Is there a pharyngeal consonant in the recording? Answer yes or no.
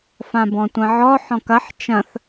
yes